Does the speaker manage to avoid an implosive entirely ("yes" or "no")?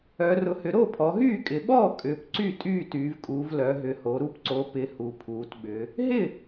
no